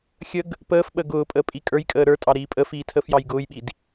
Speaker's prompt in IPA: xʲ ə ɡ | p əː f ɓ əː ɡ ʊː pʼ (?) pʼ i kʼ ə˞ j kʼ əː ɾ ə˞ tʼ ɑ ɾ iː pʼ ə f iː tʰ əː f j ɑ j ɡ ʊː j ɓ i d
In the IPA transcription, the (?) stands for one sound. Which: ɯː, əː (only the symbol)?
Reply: əː